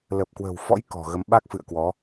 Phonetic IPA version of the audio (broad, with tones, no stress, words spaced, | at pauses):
lə˨˩p̚kwə̤˨˩wfɔ̰˧˥j kɔ̤˨˩ɣə˨˦m ɓa˦˥k̚fɨ̰˧˨ə̯kwɔ˨˦